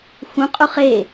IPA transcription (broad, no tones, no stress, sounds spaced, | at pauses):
x ũ qʼ u χ e